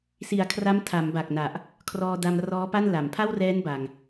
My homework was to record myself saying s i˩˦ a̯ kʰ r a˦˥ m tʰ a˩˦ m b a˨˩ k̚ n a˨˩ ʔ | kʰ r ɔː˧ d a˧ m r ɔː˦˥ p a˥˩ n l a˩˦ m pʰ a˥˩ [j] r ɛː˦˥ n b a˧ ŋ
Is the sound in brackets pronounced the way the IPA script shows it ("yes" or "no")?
no